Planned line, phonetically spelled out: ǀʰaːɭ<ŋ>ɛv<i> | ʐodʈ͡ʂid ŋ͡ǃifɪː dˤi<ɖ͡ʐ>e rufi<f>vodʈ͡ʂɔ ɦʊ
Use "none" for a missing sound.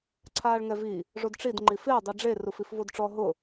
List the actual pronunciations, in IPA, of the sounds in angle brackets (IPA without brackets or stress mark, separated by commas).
ŋ, i, ɖ͡ʐ, f